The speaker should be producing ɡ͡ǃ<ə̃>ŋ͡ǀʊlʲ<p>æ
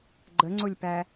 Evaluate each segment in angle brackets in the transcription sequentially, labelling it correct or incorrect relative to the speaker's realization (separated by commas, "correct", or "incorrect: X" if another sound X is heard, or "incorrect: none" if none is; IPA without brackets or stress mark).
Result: incorrect: ə, correct